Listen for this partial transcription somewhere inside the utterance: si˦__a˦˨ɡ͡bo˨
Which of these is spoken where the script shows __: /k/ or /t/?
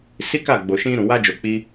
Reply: k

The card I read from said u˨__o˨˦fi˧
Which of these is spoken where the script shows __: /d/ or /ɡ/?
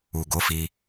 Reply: ɡ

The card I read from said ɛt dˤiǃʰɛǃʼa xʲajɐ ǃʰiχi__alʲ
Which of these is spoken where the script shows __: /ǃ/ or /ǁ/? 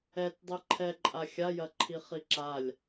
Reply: ǁ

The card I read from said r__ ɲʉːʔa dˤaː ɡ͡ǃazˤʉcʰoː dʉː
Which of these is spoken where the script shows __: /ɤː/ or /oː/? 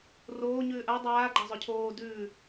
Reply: oː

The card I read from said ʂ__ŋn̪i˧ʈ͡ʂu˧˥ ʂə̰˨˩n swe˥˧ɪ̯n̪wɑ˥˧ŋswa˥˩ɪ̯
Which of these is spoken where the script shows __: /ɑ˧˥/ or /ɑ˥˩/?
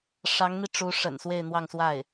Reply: ɑ˧˥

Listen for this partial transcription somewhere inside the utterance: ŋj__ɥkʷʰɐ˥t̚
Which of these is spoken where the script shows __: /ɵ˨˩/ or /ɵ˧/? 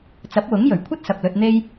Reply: ɵ˨˩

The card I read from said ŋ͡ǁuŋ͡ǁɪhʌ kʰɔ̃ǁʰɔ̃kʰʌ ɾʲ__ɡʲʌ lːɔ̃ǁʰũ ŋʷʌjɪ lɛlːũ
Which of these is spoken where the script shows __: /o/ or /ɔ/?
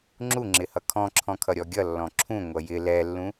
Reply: ɔ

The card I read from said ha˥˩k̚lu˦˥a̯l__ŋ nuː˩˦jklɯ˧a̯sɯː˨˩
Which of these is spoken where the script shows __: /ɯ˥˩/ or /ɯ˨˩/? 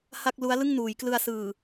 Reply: ɯ˥˩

